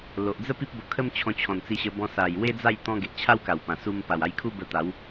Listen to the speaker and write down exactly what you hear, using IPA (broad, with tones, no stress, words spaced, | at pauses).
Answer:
lo˨ʔd͡zə˦ pi˦p̚bo˧kʰə˦mt͡ɕʰɔ̃˧ t͡ɕʰɔ̃˨˩nt͡si˧ɕə˧bɔ̃˧ sa˨˩j we˦d͡za˥˧j t̪ɔ̃˧ ɡe˨ʔt͡ɕʰa˦wka˨˩wpã˨˩ su˧m pa˨˩wa˧jkʰu˦ bə˧t̪a˨˦w